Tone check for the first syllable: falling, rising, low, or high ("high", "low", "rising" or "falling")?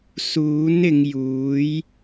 rising